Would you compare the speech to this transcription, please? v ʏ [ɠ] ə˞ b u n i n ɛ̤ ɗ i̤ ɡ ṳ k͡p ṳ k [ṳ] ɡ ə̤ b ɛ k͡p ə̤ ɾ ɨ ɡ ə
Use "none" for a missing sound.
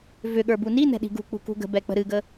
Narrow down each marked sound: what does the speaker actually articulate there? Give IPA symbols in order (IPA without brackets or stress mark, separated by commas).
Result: ɠ, ṳ